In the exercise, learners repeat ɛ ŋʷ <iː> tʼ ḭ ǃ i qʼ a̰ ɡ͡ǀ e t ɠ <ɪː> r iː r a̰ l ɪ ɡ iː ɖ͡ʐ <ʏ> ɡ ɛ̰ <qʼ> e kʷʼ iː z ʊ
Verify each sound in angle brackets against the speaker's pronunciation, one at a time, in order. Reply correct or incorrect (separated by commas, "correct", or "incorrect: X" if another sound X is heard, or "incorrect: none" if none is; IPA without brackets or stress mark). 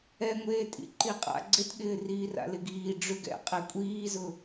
incorrect: eː, correct, correct, correct